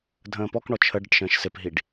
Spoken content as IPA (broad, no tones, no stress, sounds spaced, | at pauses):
dʱ ə̃ː p ɔ k ɳ ɔ t͡ʃʰ ə ɖ ə ʈ ʃ ə̃ː ʃ s ɪ p ɦ i ɖ